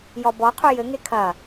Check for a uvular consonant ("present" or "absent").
present